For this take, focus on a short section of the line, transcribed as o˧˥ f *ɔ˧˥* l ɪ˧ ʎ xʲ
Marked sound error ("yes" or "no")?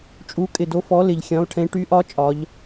no